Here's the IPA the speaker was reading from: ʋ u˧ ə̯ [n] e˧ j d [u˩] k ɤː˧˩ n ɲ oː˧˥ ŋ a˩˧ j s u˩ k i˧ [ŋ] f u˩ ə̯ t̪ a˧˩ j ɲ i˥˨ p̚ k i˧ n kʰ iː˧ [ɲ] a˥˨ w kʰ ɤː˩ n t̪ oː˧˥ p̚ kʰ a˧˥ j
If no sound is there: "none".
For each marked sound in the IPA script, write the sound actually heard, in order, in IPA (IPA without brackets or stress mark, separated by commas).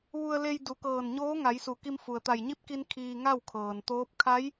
l, u˩˧, m, ŋ